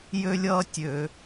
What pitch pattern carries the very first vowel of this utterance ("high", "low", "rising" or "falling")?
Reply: high